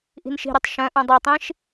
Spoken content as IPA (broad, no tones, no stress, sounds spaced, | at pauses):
ʔ i̤ n ʃ i̤ ɾ y tˤ ʃ œ̃ ʔ ũ dˤ o tˤ ĩ ʃ